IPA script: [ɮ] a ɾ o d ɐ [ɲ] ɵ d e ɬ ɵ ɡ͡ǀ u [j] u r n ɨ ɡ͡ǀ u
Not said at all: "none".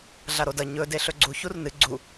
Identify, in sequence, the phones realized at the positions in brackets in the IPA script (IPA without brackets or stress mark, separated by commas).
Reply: ɮ, ɲ, ç